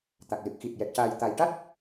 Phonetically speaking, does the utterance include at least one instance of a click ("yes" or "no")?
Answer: no